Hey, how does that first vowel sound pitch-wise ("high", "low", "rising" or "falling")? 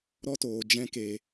high